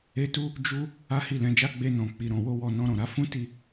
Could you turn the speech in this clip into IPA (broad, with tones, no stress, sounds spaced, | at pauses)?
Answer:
e˦ t u˦ | d͡ʒ u˦ | a˦ h i˦˨ l ɛ̃˨˦ d͡ʒ a˦ ɡ͡b e˧ n ɔ̃˨ k͡p i˨ ɾ ɔ̃˨ w o˧ w ɔ˨ n ɔ̃˧ ɾ ɔ̃˨ ɾ a˨˦ f ũ˦ t i˦˨